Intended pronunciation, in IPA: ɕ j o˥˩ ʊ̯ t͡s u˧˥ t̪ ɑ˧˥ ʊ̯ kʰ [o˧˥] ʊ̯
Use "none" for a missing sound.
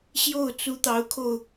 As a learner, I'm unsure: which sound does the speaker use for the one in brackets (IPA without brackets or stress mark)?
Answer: o˧